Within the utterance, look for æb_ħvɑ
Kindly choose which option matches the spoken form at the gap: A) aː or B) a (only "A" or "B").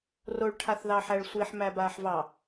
A